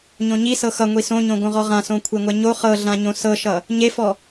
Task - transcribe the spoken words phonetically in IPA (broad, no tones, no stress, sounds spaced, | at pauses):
ɲ õ ɲ i s ɤ x ʌ ŋʷ i s õ ɲ õ ɡ õ ʁ ɔ ʁ ã s õ kʷʰ e ŋʷ ɛ ɲ o χ ɤ ɮ ã ɲ õ s ɤ ʃ ʌ | ɲ e f ɔ